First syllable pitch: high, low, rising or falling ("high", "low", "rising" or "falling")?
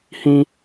high